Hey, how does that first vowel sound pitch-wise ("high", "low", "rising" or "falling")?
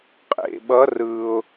low